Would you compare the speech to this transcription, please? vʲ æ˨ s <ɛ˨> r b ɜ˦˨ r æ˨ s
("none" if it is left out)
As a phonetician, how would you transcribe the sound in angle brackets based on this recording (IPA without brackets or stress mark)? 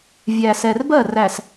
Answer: ɛ˨